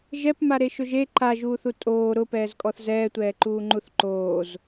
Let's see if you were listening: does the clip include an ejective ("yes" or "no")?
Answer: yes